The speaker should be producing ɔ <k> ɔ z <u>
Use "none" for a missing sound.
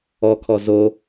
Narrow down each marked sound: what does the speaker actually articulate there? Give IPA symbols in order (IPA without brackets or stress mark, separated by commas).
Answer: kʰ, o